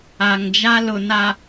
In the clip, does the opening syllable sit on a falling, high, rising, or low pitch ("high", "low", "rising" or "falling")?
low